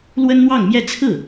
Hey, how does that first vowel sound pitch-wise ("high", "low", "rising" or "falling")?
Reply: high